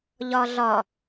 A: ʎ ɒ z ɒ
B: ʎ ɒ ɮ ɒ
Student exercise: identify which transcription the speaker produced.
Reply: B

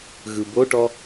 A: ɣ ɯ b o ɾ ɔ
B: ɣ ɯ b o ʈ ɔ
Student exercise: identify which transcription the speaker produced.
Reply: B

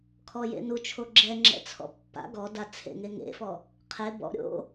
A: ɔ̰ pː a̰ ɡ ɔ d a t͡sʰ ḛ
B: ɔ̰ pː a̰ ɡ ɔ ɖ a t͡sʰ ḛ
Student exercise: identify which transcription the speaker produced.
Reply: A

